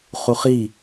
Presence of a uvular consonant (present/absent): present